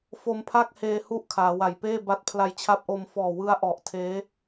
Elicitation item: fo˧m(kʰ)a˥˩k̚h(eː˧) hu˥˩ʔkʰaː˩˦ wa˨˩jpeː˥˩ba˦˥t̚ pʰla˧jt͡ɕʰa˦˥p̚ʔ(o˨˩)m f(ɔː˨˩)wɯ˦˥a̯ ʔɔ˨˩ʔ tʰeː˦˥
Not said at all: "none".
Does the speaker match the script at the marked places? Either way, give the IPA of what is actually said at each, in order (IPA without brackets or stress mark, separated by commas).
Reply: pʰ, eː˧, o˧, ɔː˨˩